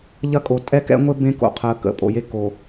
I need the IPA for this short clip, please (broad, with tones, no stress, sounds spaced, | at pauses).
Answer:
ʎ ɐ˦ kʼ o˨ tʼ ɛ˦ k ɛ̰˦ ŋʷ ɘ˦ b ẽ˦ k o̰˨ qʰ əː˨ k ə̰˨ pʼ o̰˨ j e˦ kː o˨